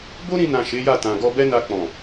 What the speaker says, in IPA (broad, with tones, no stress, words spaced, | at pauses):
bo˦ɾĩ˧nã˨ ʃe˨˦ja˦˨tã˨ ɡɔ˧bɛ˦na˧k͡pɔ̃˨